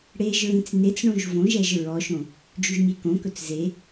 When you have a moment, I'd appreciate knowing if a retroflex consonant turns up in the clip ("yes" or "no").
yes